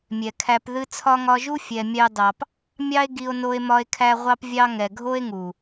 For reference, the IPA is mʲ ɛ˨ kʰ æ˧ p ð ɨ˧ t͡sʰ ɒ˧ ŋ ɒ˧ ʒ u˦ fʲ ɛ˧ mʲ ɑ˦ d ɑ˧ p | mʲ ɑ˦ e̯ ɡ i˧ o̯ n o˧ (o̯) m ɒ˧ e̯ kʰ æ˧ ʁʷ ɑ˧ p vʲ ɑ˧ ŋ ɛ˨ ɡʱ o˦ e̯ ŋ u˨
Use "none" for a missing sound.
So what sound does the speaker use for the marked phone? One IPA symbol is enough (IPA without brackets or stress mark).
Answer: e̯